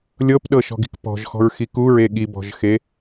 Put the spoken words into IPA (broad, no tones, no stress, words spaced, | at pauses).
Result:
lʲɤpɗɤʃɔ̤ɡi̤k pɔ̤ʒxɔ̤ɹxi kuɹe ɠibɔ̤ʒxe